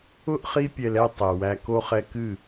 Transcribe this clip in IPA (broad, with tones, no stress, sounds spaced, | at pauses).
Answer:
ʊ˦˨ ʔ χ i˧ pʲ ɛ˨ l ɛ˦˨ tˤ ɛ˨ w æ˧ k o˦ χ ɛ˧ k ɨ˦˨